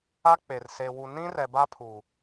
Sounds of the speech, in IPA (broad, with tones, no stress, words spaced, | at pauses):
a˦k͡pe˨r se˨wu˨ nĩ˦rɛ˨ ba˦pʰu˨